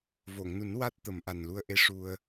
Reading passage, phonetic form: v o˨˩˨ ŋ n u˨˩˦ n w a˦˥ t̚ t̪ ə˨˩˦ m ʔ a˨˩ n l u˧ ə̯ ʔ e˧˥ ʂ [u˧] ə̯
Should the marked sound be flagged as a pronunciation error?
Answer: no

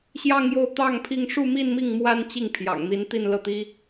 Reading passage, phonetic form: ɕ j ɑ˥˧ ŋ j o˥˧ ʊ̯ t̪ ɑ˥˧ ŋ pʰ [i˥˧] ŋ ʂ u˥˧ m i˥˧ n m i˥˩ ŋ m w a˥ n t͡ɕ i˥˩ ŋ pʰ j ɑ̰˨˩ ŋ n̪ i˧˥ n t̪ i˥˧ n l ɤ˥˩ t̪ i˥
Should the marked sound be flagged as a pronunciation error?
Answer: no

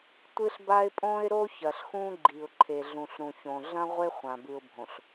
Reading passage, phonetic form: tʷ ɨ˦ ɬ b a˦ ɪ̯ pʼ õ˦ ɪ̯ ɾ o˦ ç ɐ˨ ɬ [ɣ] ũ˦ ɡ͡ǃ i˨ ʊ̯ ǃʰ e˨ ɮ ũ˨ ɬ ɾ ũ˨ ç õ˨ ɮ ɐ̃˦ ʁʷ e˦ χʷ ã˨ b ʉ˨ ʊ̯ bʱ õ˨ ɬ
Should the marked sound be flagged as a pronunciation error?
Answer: yes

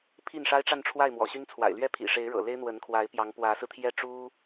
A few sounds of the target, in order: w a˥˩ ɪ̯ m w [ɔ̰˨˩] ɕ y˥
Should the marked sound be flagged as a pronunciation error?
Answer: no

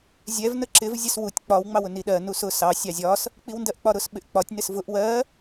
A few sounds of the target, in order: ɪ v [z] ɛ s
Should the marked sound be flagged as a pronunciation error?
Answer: yes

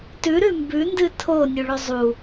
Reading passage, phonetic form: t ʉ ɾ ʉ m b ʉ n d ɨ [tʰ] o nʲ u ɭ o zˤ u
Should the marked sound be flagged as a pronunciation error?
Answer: no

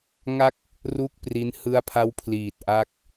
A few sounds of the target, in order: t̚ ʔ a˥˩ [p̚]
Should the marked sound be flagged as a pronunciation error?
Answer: yes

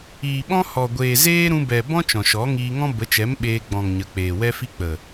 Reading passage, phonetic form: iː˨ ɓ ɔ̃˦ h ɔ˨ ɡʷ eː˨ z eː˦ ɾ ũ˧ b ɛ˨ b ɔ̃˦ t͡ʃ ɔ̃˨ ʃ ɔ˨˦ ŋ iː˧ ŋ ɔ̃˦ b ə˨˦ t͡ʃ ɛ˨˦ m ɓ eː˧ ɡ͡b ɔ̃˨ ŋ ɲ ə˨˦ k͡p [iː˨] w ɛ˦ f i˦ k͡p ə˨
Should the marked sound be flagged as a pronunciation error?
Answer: yes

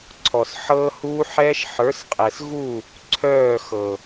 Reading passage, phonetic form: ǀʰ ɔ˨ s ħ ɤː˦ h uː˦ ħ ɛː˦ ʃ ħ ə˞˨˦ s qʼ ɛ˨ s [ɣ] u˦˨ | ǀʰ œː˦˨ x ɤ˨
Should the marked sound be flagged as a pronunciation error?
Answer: no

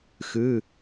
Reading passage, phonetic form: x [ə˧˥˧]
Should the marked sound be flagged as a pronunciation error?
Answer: yes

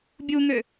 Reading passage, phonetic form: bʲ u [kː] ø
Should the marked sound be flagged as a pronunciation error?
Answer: yes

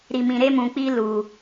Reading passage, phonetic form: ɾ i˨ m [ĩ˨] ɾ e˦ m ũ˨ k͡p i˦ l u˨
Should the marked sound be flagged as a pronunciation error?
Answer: no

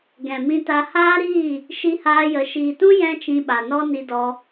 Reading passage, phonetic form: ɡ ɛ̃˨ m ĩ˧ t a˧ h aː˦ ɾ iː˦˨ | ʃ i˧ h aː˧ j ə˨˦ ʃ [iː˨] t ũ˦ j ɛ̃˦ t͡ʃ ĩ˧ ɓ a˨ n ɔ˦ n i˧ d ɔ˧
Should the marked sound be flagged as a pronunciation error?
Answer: no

